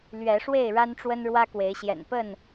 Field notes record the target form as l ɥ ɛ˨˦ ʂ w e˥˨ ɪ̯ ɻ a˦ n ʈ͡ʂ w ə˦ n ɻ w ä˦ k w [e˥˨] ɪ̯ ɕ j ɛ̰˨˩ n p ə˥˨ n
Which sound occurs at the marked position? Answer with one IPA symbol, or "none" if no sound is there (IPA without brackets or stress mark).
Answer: e˨˦